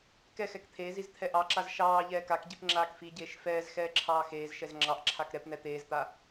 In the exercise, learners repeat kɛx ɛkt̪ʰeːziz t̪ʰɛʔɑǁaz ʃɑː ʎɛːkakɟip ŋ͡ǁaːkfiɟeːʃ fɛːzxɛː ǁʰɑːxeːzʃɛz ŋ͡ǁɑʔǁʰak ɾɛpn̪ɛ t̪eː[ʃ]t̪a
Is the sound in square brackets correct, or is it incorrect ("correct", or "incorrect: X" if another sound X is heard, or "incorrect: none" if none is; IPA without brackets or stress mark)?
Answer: incorrect: z